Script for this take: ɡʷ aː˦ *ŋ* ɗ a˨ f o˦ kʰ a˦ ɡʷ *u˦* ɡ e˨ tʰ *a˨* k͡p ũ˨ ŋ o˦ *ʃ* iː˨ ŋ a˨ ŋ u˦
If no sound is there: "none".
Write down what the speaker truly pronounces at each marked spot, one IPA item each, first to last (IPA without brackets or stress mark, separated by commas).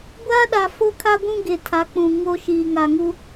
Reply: none, ũ˦, a˨˦, ʃ